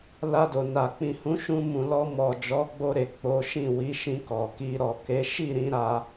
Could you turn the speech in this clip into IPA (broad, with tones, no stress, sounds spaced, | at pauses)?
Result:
l a˧ d o˨ n a˨ k͡p ĩ˨ h ũ˨˦ ʃ ũ˧ m ũ˨ l ɔ˧ m ɔ˨ d͡ʒ ɔ˨˦ ɡ͡b o˧ ɾ e˨ k͡p o˨˦ ʃ ĩ˦˨ w i˨˦ ʃ ĩ˧ k ɔ˨ k i˧ ɾ ɔ˨ k e˨˦ ʃ i˦˨ ɾ ĩ˧ ɾ a˧